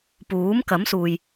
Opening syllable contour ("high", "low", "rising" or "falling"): rising